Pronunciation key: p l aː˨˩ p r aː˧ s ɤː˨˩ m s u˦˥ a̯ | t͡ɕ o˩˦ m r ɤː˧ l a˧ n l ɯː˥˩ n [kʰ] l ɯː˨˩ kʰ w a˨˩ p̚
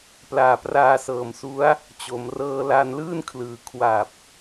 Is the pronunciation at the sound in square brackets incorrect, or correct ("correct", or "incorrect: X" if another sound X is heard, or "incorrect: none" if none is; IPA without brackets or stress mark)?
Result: correct